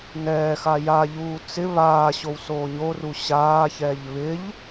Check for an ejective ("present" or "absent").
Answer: absent